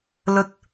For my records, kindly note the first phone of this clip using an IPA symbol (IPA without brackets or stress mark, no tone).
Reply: l